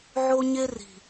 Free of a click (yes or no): yes